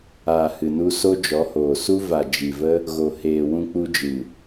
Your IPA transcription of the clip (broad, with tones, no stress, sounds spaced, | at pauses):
aː˨ h ɨ˨ n u˧ s o˦ d͡ʒ ɔ˨˦ h oː˨ s u˦ v a˨ d͡ʒ i˨ v ə˦ | ɣ o˨ h eː˨ w ũ˧ k͡p u˧ d͡ʒ ɨ˨